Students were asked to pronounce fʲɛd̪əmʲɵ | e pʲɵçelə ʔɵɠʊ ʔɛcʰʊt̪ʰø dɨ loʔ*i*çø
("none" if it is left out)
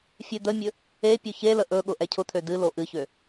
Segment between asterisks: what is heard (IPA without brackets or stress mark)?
ɨ